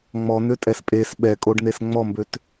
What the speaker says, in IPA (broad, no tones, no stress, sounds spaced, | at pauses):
ŋ͡m ɔ n̪ ø tʼ ɛ s pʼ e s ɓ ɛ kʼ o ɖ n̪ e s ŋ͡m ɔ m b ø t